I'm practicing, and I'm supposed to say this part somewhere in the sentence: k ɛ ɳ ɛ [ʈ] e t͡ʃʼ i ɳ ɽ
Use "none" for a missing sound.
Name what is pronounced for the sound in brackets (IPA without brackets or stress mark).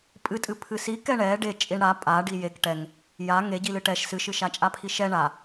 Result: ɖ